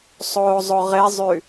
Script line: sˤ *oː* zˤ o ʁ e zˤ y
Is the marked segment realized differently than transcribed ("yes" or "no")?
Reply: no